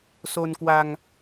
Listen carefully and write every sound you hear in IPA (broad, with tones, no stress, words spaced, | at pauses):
so˧n kwa˧ŋ